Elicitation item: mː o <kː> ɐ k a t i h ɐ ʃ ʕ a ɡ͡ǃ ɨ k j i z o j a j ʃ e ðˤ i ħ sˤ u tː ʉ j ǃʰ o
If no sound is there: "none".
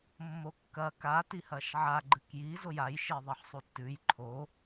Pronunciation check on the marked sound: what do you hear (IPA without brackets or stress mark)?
kː